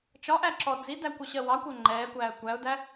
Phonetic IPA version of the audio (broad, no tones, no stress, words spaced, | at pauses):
t͡ʃɒʔæǁɔ d͡zidækʷʌɕɜ wɑkʷɜ ŋ͡ǃɛːkʷæːə̯ kʷæʊ̯dæ